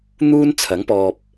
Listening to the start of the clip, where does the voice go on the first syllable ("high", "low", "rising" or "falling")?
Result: high